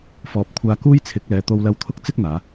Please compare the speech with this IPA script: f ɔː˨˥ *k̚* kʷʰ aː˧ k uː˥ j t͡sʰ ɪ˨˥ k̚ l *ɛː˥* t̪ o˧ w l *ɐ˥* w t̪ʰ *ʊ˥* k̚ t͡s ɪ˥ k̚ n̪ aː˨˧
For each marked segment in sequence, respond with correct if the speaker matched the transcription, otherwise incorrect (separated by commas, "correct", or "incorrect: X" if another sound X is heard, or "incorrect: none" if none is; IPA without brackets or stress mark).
incorrect: p̚, incorrect: ɛː˨˧, incorrect: ɐ˧, correct